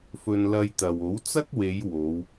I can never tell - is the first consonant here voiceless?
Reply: yes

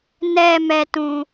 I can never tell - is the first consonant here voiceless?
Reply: no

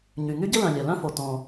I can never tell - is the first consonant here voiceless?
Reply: no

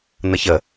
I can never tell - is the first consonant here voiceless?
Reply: no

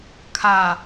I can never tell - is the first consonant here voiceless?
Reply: yes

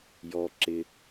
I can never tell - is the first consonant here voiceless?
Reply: no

